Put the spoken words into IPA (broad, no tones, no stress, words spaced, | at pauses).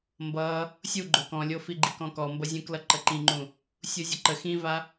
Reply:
mbʌ | sʲuɡ͡ǃo kɔ̃lʲofi ɡ͡ǃikɔ̃kɔmbʌ zʲũklʌǃə ǃĩŋ͡ǃũ | sʲuzʲəǃə xĩva